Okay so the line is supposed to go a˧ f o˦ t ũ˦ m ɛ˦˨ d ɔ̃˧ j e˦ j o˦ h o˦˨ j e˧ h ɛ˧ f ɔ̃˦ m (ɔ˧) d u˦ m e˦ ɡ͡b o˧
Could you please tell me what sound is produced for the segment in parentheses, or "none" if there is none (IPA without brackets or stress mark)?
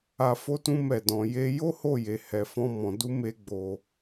ɔ̃˧